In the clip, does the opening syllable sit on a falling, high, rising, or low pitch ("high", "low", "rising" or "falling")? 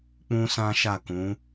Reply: high